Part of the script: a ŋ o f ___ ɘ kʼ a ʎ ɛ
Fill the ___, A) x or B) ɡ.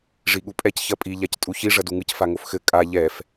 A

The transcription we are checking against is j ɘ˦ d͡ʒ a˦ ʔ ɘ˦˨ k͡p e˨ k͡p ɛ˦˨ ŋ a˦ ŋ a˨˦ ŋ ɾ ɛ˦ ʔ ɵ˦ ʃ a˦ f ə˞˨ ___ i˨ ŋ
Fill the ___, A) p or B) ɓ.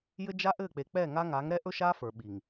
B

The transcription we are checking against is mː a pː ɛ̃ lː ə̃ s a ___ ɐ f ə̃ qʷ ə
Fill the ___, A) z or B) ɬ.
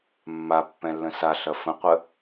B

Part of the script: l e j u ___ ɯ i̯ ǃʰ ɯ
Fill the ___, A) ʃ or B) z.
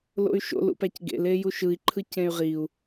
A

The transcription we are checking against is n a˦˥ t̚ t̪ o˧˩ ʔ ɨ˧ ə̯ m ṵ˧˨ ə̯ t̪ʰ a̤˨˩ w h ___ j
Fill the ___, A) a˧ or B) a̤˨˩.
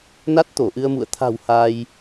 A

